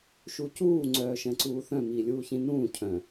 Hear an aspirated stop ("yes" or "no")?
yes